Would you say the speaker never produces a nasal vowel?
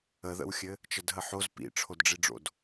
yes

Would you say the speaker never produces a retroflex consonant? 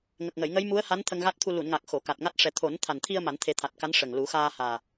no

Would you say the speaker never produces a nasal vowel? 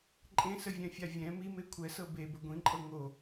no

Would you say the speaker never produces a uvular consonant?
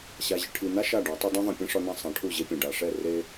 yes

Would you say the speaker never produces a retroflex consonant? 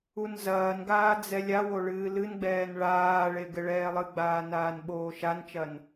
no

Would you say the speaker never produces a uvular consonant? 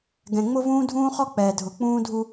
no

